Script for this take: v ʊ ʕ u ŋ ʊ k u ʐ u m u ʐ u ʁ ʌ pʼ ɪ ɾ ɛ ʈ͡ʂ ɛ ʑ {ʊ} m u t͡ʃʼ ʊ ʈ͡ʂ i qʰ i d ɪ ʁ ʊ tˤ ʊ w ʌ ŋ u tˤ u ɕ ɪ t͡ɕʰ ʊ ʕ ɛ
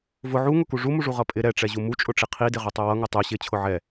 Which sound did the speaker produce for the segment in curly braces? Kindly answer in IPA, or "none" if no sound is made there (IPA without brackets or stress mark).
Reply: u